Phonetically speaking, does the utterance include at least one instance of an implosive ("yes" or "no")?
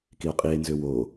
no